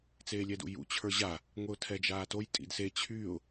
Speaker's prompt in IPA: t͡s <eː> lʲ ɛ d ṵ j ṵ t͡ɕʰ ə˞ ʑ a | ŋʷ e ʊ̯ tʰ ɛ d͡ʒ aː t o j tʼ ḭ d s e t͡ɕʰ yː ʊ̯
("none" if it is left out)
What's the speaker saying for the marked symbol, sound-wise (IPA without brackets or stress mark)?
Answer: eː